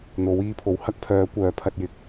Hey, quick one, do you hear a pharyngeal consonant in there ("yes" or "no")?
no